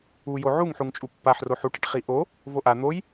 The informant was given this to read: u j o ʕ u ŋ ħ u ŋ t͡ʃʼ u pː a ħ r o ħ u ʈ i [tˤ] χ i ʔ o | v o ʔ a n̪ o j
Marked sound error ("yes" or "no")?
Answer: yes